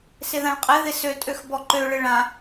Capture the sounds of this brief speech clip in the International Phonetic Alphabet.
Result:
sɪðãɭqʼɪðɪ søtʼøx bɔǃøɭɪ ɭã

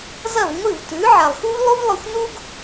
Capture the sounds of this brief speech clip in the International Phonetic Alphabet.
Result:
zɐ˥˩vŋʷɨ˥˩vtʉ˩˥ ʕa˩lˠxu˥v lˠu˥vlˠɵ˧xʷ nu˥ɡ

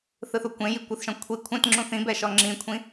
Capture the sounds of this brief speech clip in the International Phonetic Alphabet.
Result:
θɯθukʷẽji kʷɯθʃɔ̃ kʷʰi kʷʰɛ̃t ŋ͡ǁũθĩbɛ ʃɔŋ͡ǁĩkʷʰĩ

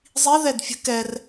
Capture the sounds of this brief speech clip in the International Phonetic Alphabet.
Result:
zˤi ðɛdfʲə̤ kɛr

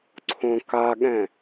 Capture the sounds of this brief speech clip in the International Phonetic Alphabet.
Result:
ǀʰõkaɠɛ̃

